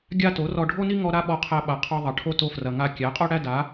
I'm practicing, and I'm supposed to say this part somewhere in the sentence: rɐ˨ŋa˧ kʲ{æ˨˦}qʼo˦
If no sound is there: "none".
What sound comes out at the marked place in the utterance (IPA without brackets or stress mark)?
æ˨˦